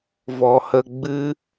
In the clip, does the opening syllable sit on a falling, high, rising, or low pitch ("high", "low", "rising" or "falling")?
low